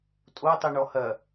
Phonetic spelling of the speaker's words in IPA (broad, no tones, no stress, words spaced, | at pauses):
tʼotˤiɳɔ hɐ